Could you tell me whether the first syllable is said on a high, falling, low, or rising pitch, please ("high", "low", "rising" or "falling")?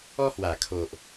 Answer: high